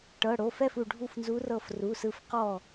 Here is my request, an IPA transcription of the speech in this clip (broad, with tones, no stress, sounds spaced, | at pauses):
ʈ ɤ˩˧˩ ɽ o˩˧˩ f ɛ˥˩ f u˧˩ ɖʱ u˥˩ f n z u˧˥ r ɤ˧˩ f r u˩˧˩ s ɯ˧˩ f q ɔ˥˩